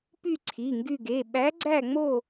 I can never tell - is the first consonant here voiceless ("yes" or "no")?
yes